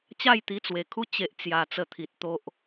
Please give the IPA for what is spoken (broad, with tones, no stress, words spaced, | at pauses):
t͡ɕa˥˧jt̪i˧t͡swe˨˩kʰu˥˧ t͡ɕe˦ʔt͡sja˧ t͡sə˧t̪ʰi˨t̚t̪o˦ʔ